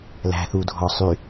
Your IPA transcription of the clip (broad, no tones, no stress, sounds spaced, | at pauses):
l æ̤ θ u dʱ ɔ sˤ y